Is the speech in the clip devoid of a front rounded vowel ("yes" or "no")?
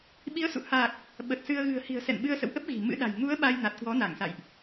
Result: yes